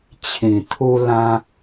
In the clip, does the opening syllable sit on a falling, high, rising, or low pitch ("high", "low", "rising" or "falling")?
low